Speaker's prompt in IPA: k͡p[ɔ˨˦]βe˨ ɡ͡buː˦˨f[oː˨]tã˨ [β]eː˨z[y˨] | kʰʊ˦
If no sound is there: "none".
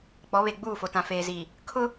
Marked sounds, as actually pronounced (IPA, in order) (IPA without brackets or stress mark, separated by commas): ɔ˨˦, o˨, f, i˨